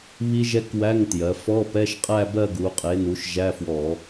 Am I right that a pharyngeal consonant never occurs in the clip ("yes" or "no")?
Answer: yes